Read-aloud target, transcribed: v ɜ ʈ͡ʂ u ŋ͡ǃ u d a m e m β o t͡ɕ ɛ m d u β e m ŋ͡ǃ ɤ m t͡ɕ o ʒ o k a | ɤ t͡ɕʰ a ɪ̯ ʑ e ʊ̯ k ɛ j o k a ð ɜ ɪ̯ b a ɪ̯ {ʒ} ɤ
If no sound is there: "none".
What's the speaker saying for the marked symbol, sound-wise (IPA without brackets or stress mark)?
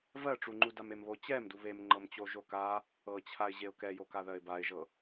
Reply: ʒ